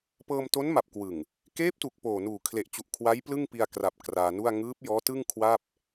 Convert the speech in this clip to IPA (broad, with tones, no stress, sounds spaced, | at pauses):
p ɤː˧ m t o˦˥ n m a˨˩ p̚ k w ɯ˨˩ ŋ | k eː˦˥ p̚ t u˨˩ k̚ p oː˨˩ n uː˨˩ kʰ l e˨˩ ʔ t͡ɕ u˨˩ ʔ kʰ w a˦˥ j p l ɯ˥˩ ŋ p i˧ a̯ k r a˨˩ p̚ k r aː˧ n u˥˩ a̯ ŋ ɯː˦˥ p̚ j ɔː˦˥ t ɯ˥˩ ŋ kʰ w a˥˩ p̚